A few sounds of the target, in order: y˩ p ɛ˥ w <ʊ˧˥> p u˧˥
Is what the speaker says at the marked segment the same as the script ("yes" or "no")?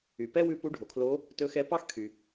no